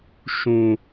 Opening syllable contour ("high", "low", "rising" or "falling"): high